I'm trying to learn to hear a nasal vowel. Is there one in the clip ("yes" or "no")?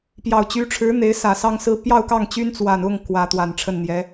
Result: no